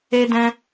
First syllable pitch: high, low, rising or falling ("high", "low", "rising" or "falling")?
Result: high